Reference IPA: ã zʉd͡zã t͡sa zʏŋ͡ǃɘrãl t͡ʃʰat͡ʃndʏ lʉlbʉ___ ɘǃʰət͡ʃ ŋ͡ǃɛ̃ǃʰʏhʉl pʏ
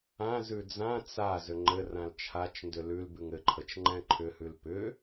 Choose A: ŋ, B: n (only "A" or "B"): A